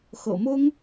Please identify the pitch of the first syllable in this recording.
low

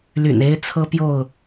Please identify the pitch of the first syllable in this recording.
low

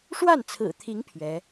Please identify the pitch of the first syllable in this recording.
falling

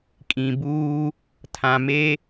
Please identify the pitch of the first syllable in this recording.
low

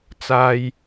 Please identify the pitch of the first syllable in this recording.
low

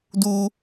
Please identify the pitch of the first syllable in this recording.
high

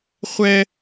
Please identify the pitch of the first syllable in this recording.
high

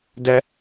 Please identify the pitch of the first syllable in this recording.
high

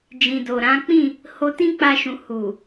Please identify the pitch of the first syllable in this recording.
low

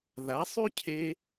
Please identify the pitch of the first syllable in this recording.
rising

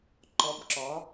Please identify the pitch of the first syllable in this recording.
rising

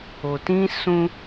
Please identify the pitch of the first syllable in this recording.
low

